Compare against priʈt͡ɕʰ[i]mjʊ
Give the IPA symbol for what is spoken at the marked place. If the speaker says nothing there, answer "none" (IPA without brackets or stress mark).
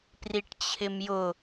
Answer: ɪ